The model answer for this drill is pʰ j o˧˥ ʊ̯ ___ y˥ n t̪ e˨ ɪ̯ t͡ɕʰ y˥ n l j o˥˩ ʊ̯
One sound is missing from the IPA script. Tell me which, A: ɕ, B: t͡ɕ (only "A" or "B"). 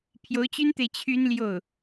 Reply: B